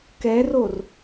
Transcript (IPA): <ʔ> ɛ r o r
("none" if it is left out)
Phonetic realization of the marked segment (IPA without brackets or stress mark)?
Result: k